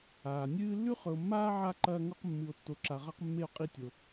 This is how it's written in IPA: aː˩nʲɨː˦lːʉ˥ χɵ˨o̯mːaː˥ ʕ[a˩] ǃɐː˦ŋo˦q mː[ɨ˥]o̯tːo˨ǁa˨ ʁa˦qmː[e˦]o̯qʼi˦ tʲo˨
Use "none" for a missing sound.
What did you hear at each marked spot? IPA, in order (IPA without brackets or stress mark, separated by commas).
a˦, ɨ˨, e˦